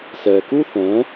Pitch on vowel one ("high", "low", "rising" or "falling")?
low